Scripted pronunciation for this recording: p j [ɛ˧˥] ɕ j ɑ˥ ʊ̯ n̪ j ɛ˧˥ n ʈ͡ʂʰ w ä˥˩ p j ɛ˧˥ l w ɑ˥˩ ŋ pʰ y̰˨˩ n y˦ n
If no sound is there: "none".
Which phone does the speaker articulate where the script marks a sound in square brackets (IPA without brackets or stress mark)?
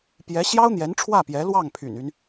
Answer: ɛ˧˥